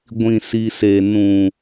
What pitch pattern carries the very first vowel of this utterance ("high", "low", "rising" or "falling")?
low